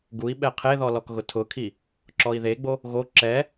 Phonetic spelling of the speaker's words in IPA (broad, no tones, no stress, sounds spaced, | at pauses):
ɡ u i̯ ɓ ɛ qʰ e ð ɔ l ɔ k ɣ ʊ tʰ ʊ kʰ i | ǁ ɔ i̯ ð e ɡ͡b o | ɣ o ǁ ɛ